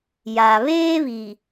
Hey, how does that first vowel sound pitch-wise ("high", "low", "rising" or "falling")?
low